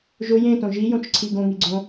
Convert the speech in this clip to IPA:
ʒ ʊ j ẽ t õ ʒ i j õ t͡ʃ ǀʰ i ɡ õ ŋ i ɡ͡ǀ õ

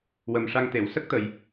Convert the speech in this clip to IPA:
w ə˨˩ m ʂ a˧ ŋ t̪ e˨˩˨ w s ə˦˥ k̚ t̪ ə˨˩˨ j

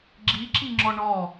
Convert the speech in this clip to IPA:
ɡ͡ǁ i ǁ i ŋ͡ǁ ɔ ɳ ɔ

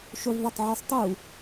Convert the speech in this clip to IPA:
ʃ u v ðˤ ɵ tˤ ʕ y sˤ tˤ u

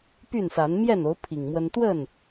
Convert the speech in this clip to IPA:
p y˥˨ n s a˨˦ n m j ɛ˥˨ n o˨˦ ʊ̯ pʰ i˨˩ ŋ m w ə˦ n t̪ w ə˥˨ n

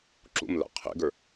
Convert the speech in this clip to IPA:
ǁ ṵ m l a̰ qʰ ḛ ɡ ə˞

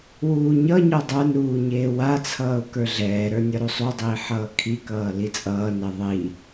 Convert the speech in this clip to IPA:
w uː ɲ ʌ ɲ ɔ dˤ ə˞ n ɾ uː ɲ eː w a t͡sʰ ʌː ʊ̯ k ə˞ ɮ ɛː ɾ ə˞ nʲ ʌ ɾ u sˤ u dˤ iː ħ ʌː kʰ i k ʌː l i t͡sʼ ʌː n ɛ ðˤ i

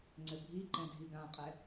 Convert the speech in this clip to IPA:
ŋ͡ǀ ɘ bʱ i ǃ ɛ̃ dʱ i ɡ ã qʼ ɛ

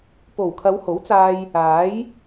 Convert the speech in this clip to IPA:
p o˨˩ w kʰ ɐ˨˧ w h o˨˥ w t͡s aː˧ j | aː˨˥ j

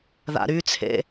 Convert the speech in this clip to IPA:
ð a̰ ɾ y t͡sʰ ḛ

